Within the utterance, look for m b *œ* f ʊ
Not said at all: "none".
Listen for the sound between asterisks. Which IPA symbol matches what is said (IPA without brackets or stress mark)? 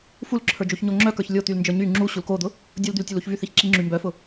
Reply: œ